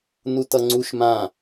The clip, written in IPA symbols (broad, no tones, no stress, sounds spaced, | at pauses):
n u t ʌ ŋ͡ǀ u ʃ m ã